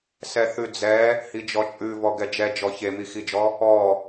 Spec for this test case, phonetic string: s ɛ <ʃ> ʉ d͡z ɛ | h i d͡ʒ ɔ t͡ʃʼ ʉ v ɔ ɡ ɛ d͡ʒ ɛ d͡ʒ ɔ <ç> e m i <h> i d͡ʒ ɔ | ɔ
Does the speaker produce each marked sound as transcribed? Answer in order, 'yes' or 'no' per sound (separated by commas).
no, yes, no